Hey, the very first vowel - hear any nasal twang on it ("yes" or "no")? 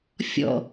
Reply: no